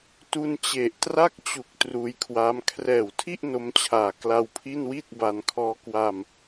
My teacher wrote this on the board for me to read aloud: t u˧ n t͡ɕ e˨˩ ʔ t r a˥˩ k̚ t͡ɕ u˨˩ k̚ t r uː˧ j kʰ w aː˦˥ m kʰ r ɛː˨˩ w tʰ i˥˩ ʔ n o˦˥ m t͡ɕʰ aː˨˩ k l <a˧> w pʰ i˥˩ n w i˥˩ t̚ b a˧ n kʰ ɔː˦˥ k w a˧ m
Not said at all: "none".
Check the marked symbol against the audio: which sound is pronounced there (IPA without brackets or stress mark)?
a˧